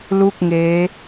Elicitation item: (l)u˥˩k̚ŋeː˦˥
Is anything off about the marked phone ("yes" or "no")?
no